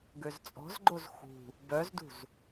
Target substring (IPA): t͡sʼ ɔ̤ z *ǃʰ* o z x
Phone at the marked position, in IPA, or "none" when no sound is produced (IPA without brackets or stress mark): ɡ͡ǃ